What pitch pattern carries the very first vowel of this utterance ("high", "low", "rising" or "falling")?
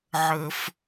high